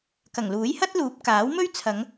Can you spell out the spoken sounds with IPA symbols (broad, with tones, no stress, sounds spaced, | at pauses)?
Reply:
k ɐ˨˩ ŋ l uː˨˥ j h ɐ˥ t̚ l uː˨˥ p̚ k aː˨˥ w m ɵ˥ ɥ t͡sʰ ɐ˨˧ ŋ